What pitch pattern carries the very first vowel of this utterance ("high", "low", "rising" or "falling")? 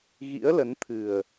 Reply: rising